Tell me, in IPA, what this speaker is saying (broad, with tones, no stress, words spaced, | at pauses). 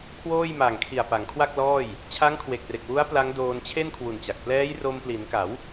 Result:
kʰwoː˥˩j ma˨˩ŋkʰi˨˩a̯pa˩˦ŋ kʰwa˥˩k̚lɔː˥˩j | t͡ɕʰa˦˥ŋkʰwe˨˩k̚re˨˩k̚ wu˦˥a̯ pla˦˥ŋdoː˧n t͡ɕʰe˥˩nkʰwu˨˩nt͡ɕa˨˩k̚ plɛː˦˥j ro˧mpli˩˦nka˩˦w